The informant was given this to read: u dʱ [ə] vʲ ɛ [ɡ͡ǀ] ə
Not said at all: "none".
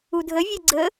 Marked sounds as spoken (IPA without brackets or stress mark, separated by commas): ə, ɡ͡ǀ